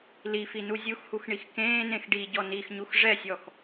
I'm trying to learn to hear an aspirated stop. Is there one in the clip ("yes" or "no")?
no